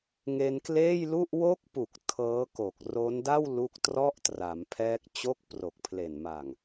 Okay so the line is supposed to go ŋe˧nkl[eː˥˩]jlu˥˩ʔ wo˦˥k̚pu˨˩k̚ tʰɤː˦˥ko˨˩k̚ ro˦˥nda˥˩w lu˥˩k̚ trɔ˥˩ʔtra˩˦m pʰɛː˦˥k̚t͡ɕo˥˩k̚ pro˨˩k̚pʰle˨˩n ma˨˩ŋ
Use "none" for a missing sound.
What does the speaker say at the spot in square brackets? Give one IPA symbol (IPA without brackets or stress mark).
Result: eː˥˩